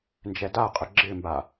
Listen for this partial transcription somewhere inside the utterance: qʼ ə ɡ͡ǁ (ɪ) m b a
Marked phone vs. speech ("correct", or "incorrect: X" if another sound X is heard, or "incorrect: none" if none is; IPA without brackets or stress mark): correct